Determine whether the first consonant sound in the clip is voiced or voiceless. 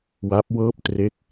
voiced